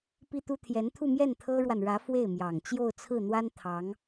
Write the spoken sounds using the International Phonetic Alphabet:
pi˥t̪u˥ t̪ʰjɛ˧˥nt̪ʰu˥˧mjɛ˥˩n t̪ʰɤ˥ɻwa˨nɻä˧˥ fwe˥˩ɪ̯mjɑ˨˩ŋ t͡ɕjo˥˧ʊ̯t͡sʰɹ̩˥˩n̪wa˥n t̪ʰɑ˧˥ŋ

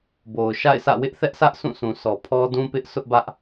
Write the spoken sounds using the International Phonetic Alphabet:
bo˨ʊ̯ʃa̰˦˨ɪ̯sä̰˦˨ wɪ˦ʔθɛ˦ʔsʰä˦ʔ sʰũ˦˨sũ˨sɔ˨ pʰɔ˦dũ˦pɪ˦ʔ sʊ˦ʔbä˦ʔ

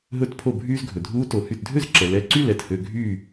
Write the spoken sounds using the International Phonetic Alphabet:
ɦɵ˧tpʰo˧˩bʱyː˧z ɡʱɵ˩dʱuː˦˥ to˩hy˧˩tdʱø˥˨zǁɛ˩ lɛ˧˩ǀy˥˨lɛ˩t hø˧ɡʱyː˥˨

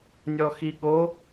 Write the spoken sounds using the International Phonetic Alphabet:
nʲɔxiɠo

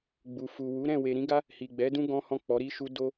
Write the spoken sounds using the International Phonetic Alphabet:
ɡ͡bu˨fu˨wu˨˦ ɾɛ̃˦˨ we˨ ɾĩ˨˦ɡa˦ | hi˨ɡ͡bɛ˨˦dũ˦ ɡɔ̃˦hɔ̃˦˨ k͡pɔ˨˦ɾi˦ʃu˦ do˦

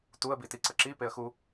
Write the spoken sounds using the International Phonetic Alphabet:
tuə̯ bitiǀəǁi peə̯xu

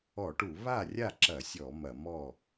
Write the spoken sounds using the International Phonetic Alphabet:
ɔ˧˩˧ʈu˧˩˧ βa˥˩rʲa˥˩ǁɐ˧˩˧sʲɔ˧˩˧ mɐ˧˩˧ mɔ˥˩

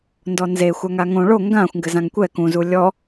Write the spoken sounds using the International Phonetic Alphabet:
ndɔnze xʷaŋaŋõ ɭo ŋɡãxʷ ŋɡɘzãŋkʷɛ kũ zulʲɔ

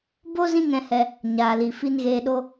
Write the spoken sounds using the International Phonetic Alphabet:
bo˦ zĩ˦ŋɛ̃˧hɛ˧ | ɲaː˨li˨ fi˧nɣeː˧ɗo˦

